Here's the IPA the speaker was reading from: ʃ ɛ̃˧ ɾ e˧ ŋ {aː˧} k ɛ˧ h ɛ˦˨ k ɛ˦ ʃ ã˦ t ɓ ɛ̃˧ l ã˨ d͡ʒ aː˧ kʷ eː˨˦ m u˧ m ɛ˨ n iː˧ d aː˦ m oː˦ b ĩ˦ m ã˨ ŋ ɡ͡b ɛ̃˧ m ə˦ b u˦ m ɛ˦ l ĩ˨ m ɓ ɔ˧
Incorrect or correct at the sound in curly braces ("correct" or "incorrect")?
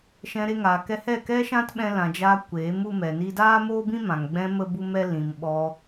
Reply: incorrect